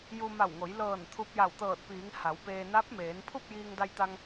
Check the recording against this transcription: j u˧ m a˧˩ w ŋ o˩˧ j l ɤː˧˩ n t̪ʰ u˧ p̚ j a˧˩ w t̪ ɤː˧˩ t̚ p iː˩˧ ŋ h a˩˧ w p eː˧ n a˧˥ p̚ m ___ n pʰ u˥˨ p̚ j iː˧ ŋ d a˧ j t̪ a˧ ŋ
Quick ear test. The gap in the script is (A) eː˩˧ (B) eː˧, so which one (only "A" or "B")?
A